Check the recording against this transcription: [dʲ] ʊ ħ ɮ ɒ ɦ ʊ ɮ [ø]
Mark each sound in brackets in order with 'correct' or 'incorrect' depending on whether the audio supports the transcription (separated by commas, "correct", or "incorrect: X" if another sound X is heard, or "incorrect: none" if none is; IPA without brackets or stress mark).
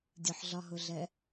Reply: correct, incorrect: ɛ